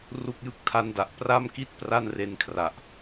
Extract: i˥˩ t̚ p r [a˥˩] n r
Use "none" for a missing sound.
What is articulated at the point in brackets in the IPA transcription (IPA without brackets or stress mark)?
a˥˩